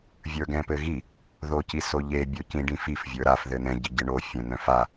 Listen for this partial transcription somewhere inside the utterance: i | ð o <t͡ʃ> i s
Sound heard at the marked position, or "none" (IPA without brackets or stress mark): c